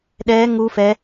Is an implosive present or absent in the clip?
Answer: present